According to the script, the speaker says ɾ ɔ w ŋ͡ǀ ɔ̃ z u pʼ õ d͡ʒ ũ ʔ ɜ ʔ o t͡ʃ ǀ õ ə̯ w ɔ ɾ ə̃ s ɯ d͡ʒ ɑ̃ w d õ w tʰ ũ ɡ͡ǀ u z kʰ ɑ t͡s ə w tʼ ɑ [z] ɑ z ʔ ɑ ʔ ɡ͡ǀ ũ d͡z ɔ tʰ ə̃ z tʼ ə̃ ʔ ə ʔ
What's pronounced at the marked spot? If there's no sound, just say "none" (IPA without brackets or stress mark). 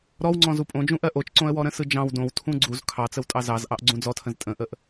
z